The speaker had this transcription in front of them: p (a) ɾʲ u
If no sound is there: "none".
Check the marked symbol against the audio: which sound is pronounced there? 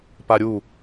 a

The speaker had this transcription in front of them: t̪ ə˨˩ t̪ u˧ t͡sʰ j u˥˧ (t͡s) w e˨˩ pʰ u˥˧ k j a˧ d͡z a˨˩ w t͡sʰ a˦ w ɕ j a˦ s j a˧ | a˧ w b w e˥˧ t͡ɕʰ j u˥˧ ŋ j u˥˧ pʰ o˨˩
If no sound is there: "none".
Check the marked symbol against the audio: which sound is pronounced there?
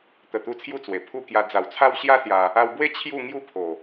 t͡s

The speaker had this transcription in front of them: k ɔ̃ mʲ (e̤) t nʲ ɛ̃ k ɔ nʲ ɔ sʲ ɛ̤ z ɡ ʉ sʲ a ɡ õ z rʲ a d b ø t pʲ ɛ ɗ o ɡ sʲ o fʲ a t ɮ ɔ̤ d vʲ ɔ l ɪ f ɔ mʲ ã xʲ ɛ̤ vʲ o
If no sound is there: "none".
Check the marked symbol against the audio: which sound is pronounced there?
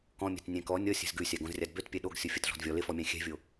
ɛ̤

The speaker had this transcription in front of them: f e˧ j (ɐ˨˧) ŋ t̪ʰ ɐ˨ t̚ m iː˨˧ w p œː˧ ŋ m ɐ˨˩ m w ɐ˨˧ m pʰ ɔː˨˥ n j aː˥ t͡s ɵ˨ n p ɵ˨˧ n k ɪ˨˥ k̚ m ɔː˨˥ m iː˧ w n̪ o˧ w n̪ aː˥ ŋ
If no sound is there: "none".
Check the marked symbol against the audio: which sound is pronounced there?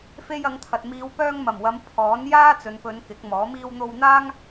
ɐ˨˧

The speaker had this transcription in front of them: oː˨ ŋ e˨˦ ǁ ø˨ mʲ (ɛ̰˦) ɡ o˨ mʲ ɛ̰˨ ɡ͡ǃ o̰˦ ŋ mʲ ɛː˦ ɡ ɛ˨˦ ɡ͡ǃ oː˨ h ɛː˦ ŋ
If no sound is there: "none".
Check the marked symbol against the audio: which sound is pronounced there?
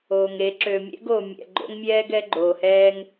ɛ̰˦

